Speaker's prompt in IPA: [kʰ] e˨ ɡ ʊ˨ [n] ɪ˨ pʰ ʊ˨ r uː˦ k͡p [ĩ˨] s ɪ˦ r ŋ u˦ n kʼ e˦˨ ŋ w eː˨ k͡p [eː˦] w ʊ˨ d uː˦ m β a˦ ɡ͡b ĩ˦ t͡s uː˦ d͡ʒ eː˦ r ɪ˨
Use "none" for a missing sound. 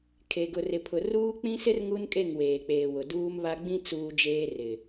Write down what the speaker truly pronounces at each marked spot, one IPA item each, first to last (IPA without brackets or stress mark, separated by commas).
kʰ, r, ĩ˦, eː˨